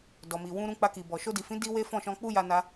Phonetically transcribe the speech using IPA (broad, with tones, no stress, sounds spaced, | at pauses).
d ɔ˨ m i˨ w ũ˧ ɾ ũ˧ k͡p a˧ k i˨ b ɔ˨ ʃ o˧ d i˨ f ĩ˨˦ d i˦ w e˦ f ɔ̃˦˨ ʃ ɔ̃˧ k͡p u˦ j a˧ n a˧